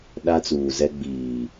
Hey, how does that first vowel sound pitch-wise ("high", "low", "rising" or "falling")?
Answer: high